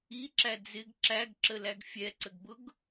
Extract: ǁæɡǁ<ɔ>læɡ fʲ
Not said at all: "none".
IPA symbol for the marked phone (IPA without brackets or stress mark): ə